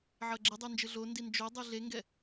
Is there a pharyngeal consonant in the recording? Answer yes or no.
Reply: yes